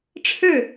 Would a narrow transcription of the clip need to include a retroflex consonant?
yes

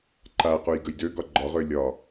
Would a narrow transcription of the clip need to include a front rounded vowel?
yes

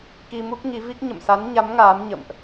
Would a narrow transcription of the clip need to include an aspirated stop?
no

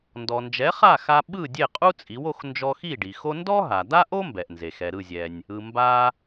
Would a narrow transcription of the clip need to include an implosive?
yes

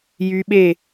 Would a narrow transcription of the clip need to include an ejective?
no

